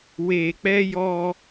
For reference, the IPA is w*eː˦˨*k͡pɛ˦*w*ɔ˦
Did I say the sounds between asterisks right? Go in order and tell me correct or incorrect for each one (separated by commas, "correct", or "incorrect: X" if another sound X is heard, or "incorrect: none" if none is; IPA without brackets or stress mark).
incorrect: eː˨, incorrect: j